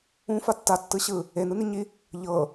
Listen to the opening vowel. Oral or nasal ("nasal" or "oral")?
nasal